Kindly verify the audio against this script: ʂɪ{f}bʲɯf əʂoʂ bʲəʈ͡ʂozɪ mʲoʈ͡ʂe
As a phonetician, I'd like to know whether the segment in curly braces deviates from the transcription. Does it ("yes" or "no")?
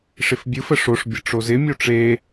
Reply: no